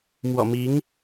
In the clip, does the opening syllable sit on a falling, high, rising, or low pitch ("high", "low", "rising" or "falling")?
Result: low